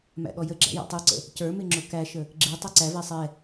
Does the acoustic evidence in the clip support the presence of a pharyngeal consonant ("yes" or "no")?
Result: no